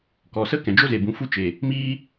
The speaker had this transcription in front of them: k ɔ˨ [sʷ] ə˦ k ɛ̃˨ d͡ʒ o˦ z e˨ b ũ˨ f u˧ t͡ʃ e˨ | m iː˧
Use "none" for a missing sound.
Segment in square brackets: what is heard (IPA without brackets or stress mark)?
s